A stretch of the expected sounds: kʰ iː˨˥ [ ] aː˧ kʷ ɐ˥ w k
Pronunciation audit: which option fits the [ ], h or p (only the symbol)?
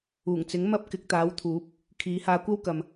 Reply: h